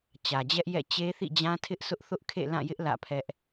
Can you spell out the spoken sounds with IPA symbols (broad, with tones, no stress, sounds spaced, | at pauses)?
t͡ɕ ä˨ d͡ʑ ɛ˦ ʔ j ɛ̰˦˨ t͡ɕ e˦ θ ḭ˦˨ d͡ʑ ã˦ tʰ ɪ˦ ʔ sʰ ʊ˦ ʔ θ ʊ˦ ʔ kʰ ḛ˦˨ l ã˦˨ j ɪ˦ ʔ l ä̰˦˨ pʰ ɛ˦ ʔ